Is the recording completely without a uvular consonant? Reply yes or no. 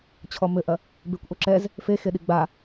yes